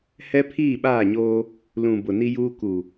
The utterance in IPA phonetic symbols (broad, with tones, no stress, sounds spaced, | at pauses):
h ɛ˦ pʰ iː˦˨ ɓ aː˦˨ ɲ oː˦ | l ũ˨ b ʊ˨ n i˦ j uː˦ k u˨